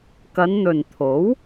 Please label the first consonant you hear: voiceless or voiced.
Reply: voiceless